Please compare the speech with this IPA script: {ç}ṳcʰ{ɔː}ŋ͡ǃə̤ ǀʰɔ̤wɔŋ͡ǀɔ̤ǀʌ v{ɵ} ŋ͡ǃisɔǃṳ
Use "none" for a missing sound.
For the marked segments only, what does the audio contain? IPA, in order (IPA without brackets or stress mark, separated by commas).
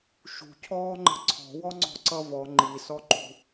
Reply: ʃ, ɔː, ɔ